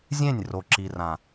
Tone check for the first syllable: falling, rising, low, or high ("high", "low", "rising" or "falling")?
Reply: falling